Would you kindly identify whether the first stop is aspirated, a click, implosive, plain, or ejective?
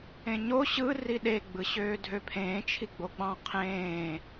implosive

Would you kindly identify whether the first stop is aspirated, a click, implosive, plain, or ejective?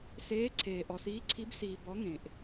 click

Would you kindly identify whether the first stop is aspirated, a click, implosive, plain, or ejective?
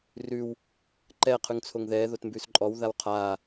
click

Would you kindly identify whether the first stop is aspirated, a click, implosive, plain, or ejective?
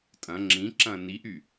ejective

